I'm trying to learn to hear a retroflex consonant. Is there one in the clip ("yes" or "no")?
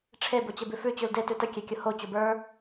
yes